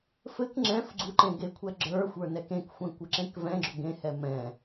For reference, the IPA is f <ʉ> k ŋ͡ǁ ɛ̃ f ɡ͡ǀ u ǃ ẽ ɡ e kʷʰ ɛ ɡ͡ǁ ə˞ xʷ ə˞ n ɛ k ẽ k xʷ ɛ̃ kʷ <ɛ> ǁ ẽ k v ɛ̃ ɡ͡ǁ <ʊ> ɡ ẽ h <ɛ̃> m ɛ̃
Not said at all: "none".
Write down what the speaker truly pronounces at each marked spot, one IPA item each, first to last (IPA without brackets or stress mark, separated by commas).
ɘ, ɘ, ʊ, ɛ